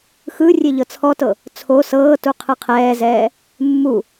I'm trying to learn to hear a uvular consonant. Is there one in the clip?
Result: yes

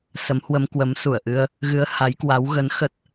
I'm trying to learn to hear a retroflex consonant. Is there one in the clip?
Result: no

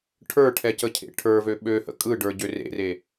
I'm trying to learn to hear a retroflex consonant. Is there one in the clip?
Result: yes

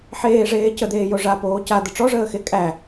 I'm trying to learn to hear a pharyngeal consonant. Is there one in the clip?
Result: yes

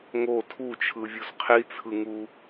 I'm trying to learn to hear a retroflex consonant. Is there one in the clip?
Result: no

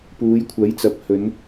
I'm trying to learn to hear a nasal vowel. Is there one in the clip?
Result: no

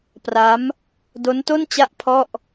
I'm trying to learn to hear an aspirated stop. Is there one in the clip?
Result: yes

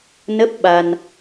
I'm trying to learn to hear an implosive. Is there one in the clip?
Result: yes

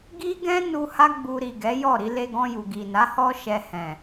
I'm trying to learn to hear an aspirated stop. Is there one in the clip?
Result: no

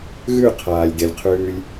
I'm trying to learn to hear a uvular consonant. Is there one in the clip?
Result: yes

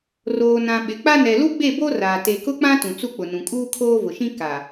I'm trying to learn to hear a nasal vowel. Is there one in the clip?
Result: yes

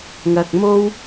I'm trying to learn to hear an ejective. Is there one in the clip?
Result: no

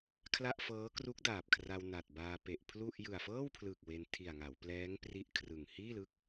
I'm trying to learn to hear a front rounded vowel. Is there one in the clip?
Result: no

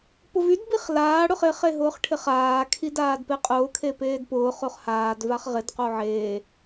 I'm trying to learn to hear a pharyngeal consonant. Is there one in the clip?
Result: yes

